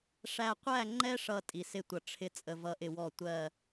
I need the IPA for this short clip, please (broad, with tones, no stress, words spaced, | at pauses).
ʂæ˨qʷæ˦˨ŋ͡ǃɛ˦ʂʌ˨ tʼi˨sɪ˦˨tʷʌ˨ ʈ͡ʂʰɪ˨ t͡sʼə˨vʌ˨˦ʔɪ˨ wɔ˦˨ tʷɜ˦˨